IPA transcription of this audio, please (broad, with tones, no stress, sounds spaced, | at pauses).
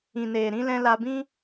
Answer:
ĩ˨ n eː˨ ɾ ĩ˧ l ɛ̃˧ l a˧ b ĩ˦